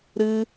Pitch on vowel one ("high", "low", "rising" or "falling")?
high